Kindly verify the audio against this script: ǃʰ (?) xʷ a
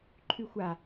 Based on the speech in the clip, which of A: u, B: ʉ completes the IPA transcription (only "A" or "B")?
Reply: B